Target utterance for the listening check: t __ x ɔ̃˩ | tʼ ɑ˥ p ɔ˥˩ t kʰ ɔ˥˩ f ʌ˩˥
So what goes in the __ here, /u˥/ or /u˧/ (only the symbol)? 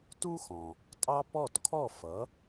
u˥